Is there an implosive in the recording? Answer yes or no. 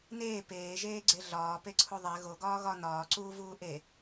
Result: no